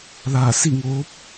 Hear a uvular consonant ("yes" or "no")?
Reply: no